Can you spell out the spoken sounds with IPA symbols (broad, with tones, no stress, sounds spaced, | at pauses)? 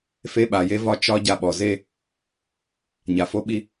f e˦ ɓ a˨ j e˦ v ɒ˦ t͡ʃ ɒ˦ ɟ a˦ ɓ ɔ˨ z e˦ | ɲ a˨ f o˦ ɓ i˦